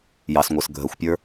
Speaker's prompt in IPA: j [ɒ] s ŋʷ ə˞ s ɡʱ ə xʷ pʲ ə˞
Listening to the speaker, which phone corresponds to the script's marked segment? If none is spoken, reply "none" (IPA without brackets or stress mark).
ɑ